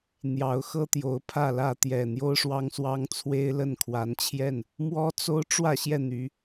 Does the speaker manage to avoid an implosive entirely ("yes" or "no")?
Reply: yes